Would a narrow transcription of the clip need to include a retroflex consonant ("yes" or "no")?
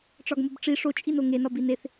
yes